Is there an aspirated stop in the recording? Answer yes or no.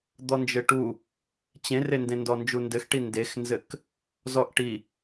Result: no